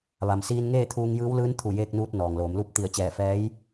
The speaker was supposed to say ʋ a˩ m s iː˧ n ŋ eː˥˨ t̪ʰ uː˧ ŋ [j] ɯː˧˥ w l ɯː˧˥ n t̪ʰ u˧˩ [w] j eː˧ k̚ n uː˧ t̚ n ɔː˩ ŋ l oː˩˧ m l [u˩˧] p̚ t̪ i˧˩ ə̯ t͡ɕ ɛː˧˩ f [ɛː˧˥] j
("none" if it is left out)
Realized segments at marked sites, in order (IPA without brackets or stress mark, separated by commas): j, none, u˧˥, ɛː˧˥